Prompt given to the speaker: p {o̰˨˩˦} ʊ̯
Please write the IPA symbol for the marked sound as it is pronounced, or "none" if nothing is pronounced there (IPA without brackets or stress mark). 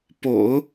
o̰˨˩˦